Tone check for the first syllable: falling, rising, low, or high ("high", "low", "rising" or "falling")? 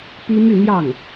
high